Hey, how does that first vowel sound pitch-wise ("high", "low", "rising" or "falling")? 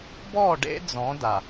falling